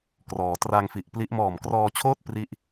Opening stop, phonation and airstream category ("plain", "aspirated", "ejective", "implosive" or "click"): plain